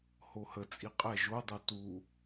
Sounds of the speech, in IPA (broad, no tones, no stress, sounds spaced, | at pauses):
h o h ə t͡sʼ i qʼ ɛ ʒ o dˤ o t u